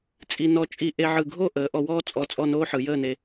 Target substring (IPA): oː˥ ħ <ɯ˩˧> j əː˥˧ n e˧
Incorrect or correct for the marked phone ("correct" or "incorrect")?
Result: correct